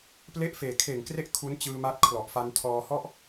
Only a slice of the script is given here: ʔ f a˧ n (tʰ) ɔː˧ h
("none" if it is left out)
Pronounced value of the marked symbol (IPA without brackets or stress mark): tʰ